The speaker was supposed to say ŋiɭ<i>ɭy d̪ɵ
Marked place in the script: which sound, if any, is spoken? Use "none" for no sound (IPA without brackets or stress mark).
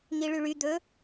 y